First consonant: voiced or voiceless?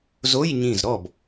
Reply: voiced